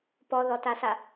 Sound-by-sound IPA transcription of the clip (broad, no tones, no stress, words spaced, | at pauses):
pɔðɔtasa